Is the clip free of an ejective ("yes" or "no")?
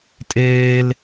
no